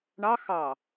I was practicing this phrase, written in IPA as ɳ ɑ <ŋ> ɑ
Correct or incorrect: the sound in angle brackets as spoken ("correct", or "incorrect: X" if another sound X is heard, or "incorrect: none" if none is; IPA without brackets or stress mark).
incorrect: x